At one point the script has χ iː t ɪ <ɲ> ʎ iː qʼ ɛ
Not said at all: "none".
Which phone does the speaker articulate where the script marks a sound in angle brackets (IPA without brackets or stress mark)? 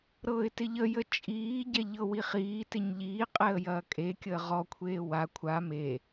ɲ